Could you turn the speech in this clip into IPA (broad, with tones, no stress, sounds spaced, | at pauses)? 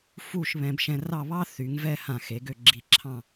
f u˥˧ ʃ β ɛ̃˧ b ʃ ɛ̃˧ r ɑ˥˧ β ɑ˥ θ y˩˧ ŋ v ɛ˥˧ h ã˧˩ x e˩˧ ɡ ø˥˧ ɡ͡ǁ i˧˩ ǁʰ ɑ̃˥˧